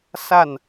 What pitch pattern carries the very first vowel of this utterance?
falling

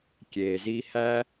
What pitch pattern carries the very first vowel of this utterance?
low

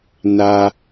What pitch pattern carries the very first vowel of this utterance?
low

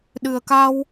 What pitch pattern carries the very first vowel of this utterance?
low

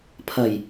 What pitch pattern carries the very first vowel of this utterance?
low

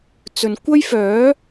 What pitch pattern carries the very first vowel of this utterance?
low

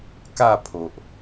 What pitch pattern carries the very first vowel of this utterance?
falling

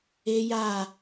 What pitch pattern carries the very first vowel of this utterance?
high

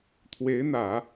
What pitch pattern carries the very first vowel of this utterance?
rising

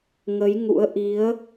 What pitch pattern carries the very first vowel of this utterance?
rising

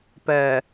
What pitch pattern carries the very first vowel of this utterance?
low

